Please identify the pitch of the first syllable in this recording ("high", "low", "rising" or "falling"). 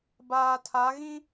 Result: low